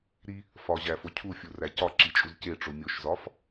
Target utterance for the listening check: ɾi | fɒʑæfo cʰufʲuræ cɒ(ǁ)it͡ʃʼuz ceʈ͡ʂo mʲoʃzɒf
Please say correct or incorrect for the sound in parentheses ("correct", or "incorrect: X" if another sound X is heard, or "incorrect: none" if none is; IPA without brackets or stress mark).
correct